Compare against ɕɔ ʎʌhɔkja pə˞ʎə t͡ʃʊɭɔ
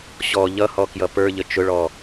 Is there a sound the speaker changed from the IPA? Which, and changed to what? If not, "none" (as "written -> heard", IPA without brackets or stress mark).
a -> ʌ